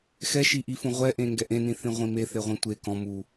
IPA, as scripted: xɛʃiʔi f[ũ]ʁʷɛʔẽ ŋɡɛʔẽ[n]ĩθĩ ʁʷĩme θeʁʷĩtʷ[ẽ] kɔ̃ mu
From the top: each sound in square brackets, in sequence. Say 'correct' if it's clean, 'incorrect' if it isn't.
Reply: correct, correct, incorrect

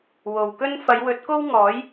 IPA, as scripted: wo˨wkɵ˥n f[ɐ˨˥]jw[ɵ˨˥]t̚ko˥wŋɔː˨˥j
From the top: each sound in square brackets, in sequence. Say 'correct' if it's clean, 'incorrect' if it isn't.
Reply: incorrect, correct

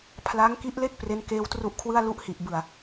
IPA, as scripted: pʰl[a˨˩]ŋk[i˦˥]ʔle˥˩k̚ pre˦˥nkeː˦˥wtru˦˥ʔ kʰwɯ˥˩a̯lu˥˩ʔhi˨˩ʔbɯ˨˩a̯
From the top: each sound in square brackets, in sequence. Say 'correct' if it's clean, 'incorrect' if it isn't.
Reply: incorrect, correct

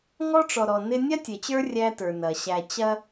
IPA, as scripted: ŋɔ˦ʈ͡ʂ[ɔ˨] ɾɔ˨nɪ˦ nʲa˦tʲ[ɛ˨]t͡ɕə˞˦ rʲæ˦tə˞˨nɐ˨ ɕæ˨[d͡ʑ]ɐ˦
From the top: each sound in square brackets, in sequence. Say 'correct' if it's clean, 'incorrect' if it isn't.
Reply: correct, correct, incorrect

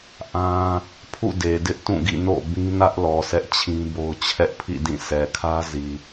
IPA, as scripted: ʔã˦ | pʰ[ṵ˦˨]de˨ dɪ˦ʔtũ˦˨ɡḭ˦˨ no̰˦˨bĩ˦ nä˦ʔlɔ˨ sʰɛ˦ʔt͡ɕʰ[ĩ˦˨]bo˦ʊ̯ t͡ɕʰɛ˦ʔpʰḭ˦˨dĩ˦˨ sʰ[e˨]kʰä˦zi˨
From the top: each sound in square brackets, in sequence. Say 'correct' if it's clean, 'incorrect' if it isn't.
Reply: correct, incorrect, incorrect

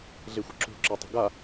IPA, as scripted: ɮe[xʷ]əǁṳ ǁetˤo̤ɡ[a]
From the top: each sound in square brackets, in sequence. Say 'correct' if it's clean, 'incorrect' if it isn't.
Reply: correct, correct

